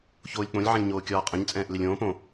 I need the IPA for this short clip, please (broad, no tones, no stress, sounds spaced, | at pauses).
ç oː lʲ k͡p õ lʲ ʕ ɛ̃ lʲ ɲ oː kʲ ɒː qʼ ə̃ ɲ t͡sʼ ɛ̃ː ʔ l ɪ lʲ õː p õ